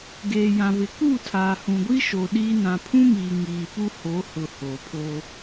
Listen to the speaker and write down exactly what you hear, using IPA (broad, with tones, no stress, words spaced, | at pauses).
ɡeː˨jã˨vɪ˨ ku˦˨ tʰaː˨hũ˨ɡʷi˦ʃo˨ ɗiː˦ nã˨pʰũ˦miː˨ ŋiː˨pu˦ho˨˦ hʊ˨ hoː˨pʰoː˦